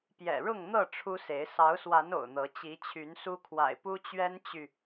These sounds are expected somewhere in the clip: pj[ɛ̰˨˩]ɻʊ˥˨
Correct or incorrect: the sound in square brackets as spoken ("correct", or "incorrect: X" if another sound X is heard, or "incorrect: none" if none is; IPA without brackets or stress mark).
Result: correct